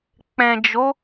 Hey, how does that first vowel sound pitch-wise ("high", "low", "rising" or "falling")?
low